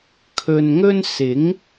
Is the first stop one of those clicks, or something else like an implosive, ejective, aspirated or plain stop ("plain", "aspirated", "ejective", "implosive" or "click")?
aspirated